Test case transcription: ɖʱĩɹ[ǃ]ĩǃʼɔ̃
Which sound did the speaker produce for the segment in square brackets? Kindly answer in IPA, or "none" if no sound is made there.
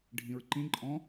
ǃ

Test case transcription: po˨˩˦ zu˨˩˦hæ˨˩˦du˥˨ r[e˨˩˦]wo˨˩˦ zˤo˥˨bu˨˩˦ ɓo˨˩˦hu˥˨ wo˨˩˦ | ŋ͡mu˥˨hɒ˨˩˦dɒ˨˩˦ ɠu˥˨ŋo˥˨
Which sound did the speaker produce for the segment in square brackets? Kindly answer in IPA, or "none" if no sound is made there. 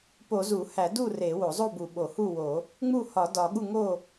e˨˩˦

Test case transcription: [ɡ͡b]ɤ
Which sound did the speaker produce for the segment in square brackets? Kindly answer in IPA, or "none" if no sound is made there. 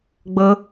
ɡ͡b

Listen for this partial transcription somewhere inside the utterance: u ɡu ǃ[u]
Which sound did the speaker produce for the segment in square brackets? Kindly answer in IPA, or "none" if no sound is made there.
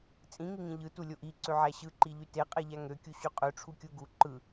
ɯ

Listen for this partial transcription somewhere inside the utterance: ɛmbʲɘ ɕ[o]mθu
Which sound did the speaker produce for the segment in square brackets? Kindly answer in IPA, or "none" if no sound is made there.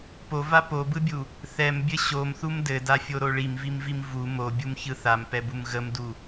o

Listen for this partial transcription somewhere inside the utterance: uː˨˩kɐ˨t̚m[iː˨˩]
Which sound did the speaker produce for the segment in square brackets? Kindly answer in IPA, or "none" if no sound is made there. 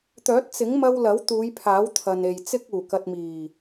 iː˨˩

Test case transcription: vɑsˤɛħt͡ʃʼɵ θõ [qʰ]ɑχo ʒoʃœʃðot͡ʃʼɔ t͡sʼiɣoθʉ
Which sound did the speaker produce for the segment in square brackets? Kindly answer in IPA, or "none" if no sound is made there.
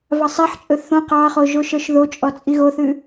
q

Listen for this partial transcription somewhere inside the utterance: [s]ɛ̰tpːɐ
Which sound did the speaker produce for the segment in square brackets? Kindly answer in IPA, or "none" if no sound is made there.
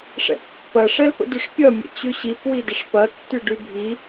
ʂ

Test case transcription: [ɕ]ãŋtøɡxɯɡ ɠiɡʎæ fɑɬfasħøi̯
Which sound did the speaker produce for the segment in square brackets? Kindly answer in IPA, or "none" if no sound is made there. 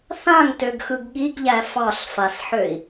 θ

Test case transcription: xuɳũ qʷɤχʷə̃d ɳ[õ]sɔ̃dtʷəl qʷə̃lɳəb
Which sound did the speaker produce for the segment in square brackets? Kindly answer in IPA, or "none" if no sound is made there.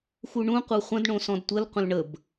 õ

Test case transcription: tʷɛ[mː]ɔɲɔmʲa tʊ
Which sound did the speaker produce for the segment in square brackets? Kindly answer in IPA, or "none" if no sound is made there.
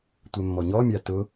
mː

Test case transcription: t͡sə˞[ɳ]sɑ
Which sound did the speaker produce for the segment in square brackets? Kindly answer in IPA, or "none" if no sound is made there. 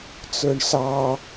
ɳ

